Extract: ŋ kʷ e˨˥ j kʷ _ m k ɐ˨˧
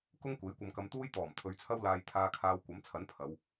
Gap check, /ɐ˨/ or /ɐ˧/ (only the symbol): ɐ˨